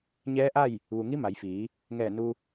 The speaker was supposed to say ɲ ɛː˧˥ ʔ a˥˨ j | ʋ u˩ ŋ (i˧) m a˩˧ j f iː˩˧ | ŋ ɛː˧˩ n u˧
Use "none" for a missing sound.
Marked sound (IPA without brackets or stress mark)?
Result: i˧˥